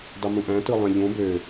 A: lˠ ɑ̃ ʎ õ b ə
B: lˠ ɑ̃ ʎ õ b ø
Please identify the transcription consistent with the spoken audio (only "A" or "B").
B